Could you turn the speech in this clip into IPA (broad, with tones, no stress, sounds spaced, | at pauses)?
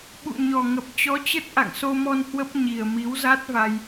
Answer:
ɓ ṵ˧˨ ɲ ɔ˨˩ ŋ ə˨˩ p̚ t͡ɕ ɔ˨˦ t͡ɕ ə˦˥ t̚ ʔ a̰˧˨ ŋ s o˧ m ɔ˧ n h w ə˦˥ p̚ ɲ i˨˩ ə̯ m i˨˦ w z a˦˥ t̚ v a˧ j